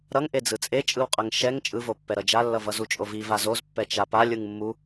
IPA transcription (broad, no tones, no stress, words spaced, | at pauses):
ɾʌŋʔe d͡zɯt͡sʼet͡ʃʼɯw qʼʌŋʃɛŋ t͡ʃʼɯvopːɛɾʌ d͡ʒalːʌvʌ zut͡ʃʼovi vazozpːɛ t͡ʃapa lʲɯŋmːu